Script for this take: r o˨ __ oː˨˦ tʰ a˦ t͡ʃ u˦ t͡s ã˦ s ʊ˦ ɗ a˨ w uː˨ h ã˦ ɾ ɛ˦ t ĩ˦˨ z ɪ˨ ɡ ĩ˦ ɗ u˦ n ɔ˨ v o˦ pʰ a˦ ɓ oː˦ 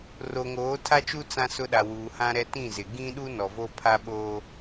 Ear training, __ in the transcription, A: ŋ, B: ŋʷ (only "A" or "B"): A